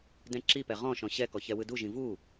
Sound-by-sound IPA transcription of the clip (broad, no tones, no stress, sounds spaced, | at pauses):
d ɛ̃ ǁ i p ɛ ʁ ɔ̃ ʃ ɔ̃ ɕ ɛ k ɔ ç ɛ w ɯ d u ʒ ĩ v u